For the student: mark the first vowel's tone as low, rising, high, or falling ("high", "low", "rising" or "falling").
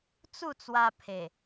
falling